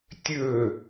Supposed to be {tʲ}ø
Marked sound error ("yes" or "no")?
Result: no